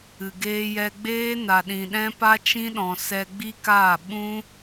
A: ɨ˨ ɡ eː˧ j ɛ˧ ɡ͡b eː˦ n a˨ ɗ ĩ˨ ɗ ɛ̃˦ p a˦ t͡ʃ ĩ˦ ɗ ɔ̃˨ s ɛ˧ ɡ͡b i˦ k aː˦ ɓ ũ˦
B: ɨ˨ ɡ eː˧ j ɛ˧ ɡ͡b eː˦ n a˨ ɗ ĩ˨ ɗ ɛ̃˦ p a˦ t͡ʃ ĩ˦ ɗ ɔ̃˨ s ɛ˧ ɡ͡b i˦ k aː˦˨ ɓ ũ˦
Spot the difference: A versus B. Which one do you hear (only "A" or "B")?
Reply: B